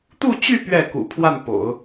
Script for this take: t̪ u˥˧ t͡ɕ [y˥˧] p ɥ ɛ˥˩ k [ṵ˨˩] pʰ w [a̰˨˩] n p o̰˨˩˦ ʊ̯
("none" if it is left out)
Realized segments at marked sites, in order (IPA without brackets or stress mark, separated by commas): y˥˧, ṵ˨˩, a˥˩